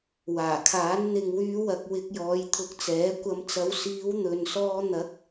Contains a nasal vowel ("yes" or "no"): no